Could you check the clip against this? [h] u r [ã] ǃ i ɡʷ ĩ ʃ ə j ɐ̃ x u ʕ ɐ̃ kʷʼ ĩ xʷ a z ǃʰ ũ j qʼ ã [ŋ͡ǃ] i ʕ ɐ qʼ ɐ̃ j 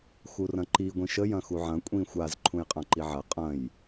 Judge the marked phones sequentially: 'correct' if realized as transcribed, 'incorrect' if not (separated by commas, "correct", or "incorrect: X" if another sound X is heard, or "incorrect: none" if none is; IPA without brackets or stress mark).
incorrect: x, incorrect: ɐ̃, incorrect: ǃ